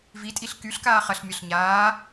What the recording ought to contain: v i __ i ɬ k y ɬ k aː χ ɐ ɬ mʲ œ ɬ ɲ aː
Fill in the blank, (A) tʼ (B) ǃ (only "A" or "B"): A